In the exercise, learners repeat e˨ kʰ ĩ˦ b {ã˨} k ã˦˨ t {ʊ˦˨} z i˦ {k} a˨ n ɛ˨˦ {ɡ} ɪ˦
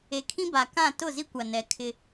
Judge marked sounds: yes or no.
no, yes, no, no

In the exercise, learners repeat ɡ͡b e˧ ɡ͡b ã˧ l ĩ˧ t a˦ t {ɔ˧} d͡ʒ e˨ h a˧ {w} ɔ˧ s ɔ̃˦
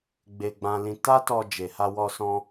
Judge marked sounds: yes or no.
yes, yes

